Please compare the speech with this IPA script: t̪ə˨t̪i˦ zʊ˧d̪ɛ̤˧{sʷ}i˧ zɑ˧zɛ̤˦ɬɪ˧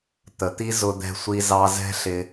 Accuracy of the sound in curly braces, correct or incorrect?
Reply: correct